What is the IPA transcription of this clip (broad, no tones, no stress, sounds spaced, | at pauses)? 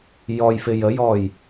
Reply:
j ɔ j f ɪ j ə j ɔ j